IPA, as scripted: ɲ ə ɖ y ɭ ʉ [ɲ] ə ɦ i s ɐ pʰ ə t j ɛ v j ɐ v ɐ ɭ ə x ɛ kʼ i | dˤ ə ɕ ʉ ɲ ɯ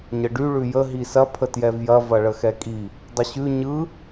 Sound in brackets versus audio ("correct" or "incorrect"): incorrect